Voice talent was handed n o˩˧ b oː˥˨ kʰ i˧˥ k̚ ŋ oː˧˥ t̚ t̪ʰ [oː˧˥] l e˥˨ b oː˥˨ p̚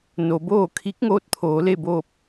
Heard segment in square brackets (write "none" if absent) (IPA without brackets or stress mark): oː˩˧